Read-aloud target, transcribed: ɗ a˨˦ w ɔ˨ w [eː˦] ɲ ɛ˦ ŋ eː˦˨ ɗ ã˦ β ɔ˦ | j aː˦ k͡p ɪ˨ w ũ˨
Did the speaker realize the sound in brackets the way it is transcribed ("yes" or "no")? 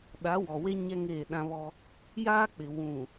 no